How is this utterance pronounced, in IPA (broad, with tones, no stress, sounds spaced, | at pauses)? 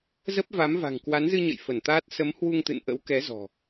z ə˦˥ p̚ v a˨˦ m v a̤˨˩ ŋ k w a˨˦ n z ɨ˧ ɲ ə̰˧˨ j f ə˧˩ n t̪ aː˦˥ t̚ s ə˨˦ m h w u˧ ŋ t̪ ɨ̰˧˨ n ʔ ə̰˧˥ w k ɛ˨˦ z ɔ̤˨˩